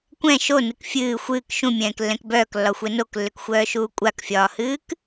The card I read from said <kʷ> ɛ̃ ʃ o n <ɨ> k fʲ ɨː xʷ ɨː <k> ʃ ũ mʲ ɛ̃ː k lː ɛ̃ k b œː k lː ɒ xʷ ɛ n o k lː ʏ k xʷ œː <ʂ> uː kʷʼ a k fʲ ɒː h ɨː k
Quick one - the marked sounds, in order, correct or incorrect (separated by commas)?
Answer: correct, correct, correct, incorrect